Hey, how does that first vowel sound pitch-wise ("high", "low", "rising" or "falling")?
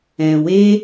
low